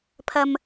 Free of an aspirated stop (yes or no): no